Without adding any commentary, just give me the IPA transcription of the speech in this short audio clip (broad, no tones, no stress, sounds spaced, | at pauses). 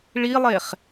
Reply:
ɭ i lˠ e χ